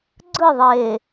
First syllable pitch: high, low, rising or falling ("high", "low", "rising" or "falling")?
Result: falling